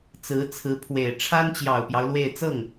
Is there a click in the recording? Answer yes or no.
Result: no